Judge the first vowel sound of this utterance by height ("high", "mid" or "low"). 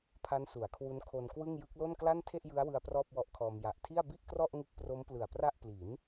low